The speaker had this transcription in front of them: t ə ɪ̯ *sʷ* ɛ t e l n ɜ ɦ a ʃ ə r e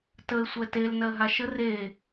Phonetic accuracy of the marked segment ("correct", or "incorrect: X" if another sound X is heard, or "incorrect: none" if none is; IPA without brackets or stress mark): correct